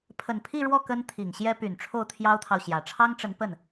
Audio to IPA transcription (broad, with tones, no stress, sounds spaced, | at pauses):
pʰ ə˨˩ n pʰ i˥˧ ɻ w ɔ˥˩ k ə˥ n t̪ʰ i˨˩ ŋ ɕ j ɛ˥ p y˨˩ n ʈ͡ʂʰ o˥˩ ʊ̯ t̪ʰ j ɑ˥ ʊ̯ t̪ʰ ɑ˨ ʊ̯ ɕ j ä˨˩ ʈ͡ʂʰ ɑ˥ ŋ ʈ͡ʂ ə˧˥ n p ə˥˩ n